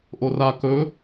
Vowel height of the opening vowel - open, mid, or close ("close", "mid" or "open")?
mid